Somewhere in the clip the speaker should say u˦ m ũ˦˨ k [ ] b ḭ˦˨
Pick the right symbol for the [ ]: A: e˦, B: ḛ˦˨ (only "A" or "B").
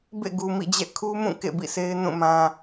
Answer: B